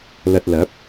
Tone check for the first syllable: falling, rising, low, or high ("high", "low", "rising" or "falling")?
low